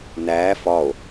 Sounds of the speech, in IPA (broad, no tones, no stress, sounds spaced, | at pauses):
n æː f ɒ o̯